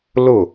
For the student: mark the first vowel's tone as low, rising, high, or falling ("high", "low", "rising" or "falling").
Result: falling